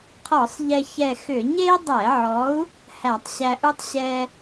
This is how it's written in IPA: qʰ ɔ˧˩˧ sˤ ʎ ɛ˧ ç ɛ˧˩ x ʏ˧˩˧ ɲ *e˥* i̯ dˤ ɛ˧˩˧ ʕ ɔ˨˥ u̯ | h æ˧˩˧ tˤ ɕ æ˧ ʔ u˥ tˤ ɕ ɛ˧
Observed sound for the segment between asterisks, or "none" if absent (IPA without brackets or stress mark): e˥